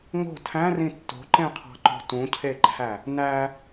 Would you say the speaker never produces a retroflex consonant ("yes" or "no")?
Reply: yes